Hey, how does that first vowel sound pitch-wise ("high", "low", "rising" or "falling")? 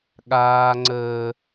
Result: high